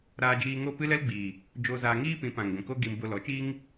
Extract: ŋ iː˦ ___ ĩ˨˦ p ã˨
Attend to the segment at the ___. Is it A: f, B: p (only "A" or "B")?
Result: B